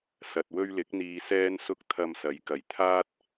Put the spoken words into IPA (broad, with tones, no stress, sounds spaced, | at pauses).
s ɐ˨ t̚ w ɵ˧ ɥ l ɪ˨˥ k̚ n̪ iː˧ s ɛː˧ n s ʊ˧ k̚ t̪ʰ ɐ˧ m s ɐ˨˥ j k ɐ˨ j t̪ʰ aː˥ t̚